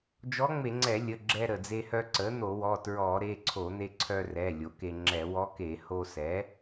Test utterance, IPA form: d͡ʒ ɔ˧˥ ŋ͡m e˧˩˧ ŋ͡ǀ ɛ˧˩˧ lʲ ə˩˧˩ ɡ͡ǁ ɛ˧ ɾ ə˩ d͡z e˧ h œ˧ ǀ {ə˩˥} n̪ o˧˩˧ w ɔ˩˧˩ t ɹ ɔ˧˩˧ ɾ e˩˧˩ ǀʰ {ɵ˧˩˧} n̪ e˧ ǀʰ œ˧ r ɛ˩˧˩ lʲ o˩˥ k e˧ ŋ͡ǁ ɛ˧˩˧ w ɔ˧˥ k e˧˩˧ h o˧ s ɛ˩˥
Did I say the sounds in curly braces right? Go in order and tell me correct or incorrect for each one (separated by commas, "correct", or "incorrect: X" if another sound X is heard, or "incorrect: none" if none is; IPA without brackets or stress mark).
correct, incorrect: o˧˩˧